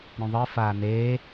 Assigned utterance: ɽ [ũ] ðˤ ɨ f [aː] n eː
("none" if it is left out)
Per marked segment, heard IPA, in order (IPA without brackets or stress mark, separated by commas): ũ, aː